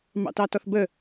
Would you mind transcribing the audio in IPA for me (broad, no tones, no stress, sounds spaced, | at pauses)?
m ɑ̰ t ɑ t ɔ θ b ə